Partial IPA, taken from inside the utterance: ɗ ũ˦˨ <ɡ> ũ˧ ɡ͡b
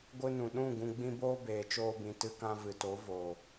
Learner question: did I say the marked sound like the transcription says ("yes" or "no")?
yes